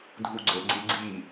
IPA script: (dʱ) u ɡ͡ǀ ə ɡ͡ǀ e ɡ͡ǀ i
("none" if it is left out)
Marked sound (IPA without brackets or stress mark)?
dʱ